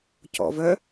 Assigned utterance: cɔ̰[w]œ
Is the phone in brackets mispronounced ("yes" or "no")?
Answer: yes